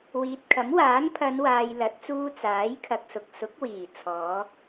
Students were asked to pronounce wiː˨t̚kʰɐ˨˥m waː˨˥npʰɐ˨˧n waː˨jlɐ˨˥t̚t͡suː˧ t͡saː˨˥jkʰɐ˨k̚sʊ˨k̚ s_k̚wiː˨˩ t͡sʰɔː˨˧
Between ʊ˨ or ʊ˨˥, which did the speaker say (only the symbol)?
ʊ˨˥